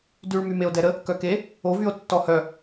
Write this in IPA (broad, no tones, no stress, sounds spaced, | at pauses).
d y ɭ m y m e o̯ d ɛ ɾ ə | k œ k e | o v y o̯ tː ɔ h œ